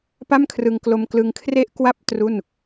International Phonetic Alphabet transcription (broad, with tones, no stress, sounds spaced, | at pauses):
p a˥˩ m kʰ r ɯ˧ ŋ k l o˧ m k l ɯ˧ ŋ kʰ r e˥˩ ʔ k w a˥˩ p̚ t r u˥˩ n